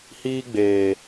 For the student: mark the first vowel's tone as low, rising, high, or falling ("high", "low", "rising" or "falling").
high